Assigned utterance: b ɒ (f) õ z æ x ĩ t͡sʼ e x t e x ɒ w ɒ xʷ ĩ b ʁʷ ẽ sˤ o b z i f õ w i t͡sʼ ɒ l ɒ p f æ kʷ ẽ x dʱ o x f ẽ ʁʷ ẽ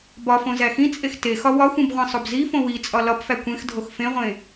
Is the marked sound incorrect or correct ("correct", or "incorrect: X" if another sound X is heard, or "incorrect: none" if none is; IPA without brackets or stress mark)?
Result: correct